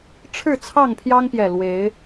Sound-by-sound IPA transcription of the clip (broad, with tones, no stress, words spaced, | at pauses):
ʈ͡ʂʰɻ̩˥˨ t͡sʰɑ˥˨ŋpʰjɑ˦ŋpjɛ˨˩ lwe˨˦ɪ̯